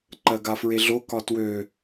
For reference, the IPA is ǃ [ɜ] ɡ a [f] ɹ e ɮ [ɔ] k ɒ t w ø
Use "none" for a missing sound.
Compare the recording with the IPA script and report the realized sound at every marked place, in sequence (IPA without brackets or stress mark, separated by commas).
ɜ, f, o